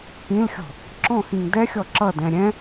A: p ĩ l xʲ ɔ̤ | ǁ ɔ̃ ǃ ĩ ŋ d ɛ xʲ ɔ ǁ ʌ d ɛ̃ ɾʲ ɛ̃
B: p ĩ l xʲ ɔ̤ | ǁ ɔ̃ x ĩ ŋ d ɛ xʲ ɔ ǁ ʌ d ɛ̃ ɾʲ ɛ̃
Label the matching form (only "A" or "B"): B